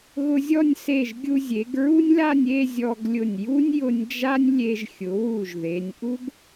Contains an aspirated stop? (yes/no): no